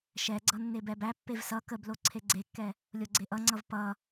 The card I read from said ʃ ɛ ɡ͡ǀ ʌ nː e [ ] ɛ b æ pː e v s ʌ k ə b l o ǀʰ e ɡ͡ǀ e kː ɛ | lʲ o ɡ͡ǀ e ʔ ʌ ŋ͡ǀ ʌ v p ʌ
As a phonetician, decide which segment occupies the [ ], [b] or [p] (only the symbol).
b